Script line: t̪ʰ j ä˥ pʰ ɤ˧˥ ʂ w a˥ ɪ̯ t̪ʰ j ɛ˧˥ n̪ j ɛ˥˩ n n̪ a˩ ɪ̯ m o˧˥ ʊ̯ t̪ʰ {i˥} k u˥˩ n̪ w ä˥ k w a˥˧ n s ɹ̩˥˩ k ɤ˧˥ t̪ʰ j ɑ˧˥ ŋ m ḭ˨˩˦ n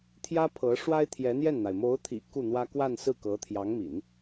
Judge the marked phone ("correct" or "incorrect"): incorrect